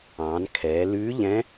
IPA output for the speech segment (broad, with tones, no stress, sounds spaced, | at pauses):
ɑ̃ː˩˧ n kʰ ɛː˩˧ l ʉː˧˥ ʎ ɛ̃˧˥